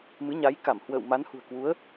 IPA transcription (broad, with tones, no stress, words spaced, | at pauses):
mɨ˨˦ɲa˨˦jka˧˩m hwə̰ː˧˨wma˨˦nhṳ˨˩ə̯ kwu˨˦ə̯